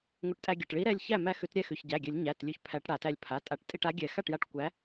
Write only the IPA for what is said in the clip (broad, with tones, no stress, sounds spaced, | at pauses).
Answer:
ŋʷ ɘ˨˥ ʈ tʼ æ˧ ɡʲ ɘ˩˧˩ ʈ ɭ i˨˥ ɾ ɛ˩˧˩ lʲ ç æ˥˩ m æ˧ x ʉ˨˩˦ t ɾʲ ɛ˥˩ x ʉ˩˧˩ ç ɟ æ˩˧˩ ɡʲ ɘ˨˩˦ lʲ ɲ æ˩˧˩ t lʲ ʉ˧˩ ç pʰ æ˨˩˦ ʈ ɽ a˨˩˦ t æ˧ lʲ pʰ a˩˧˩ tʼ a˨˩˦ ʈ tʼ i˧ ʈ a˨˥ ɡʲ ɛ˨˩˦ x a˥˩ ʈ j a˧ ʈ kʷ æ˨˥